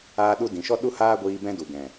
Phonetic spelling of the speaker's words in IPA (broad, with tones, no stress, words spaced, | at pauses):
aː˦ɗu˦ dĩ˨ʃɔ˦ ɗu˦haː˦ɡʷiː˧ bɛ̃˦du˨ ɡɛ̃˨